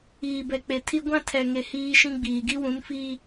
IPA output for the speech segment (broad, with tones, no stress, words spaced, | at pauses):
iː˨bɛ˨k͡pe˨tʰi˦ ɡʷã˦ tʰɛ˨ŋe˨ hiː˦ʃĩ˦ɡ͡biː˨ ɡi˦wũ˨˦nfiː˦